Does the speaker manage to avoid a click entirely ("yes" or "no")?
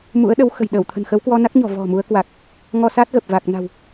yes